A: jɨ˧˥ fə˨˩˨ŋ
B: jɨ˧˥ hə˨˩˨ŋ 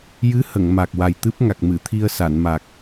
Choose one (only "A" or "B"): B